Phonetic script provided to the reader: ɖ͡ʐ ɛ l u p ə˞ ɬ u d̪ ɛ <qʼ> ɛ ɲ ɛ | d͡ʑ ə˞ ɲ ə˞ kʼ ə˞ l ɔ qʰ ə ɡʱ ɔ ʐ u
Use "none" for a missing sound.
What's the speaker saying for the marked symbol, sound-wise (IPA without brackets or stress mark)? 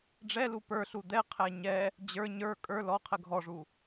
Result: qʰ